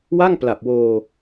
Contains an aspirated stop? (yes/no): no